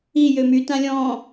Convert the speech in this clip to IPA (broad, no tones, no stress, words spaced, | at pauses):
i jømy tãlʲɔ̃